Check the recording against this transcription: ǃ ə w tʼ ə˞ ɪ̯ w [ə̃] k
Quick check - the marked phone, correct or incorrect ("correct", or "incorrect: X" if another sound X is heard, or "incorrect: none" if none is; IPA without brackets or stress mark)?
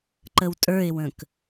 correct